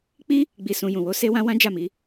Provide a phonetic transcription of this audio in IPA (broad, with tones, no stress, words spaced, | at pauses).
k͡pi˦ | ɡ͡bi˨sũ˨jũ˨wo˧ se˦wã˦ wã˦d͡ʒa˦˨mi˨˦